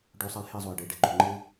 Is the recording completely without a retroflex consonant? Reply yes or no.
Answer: no